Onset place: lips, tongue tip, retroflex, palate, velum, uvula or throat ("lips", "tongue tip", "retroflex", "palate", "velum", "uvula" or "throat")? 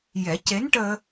palate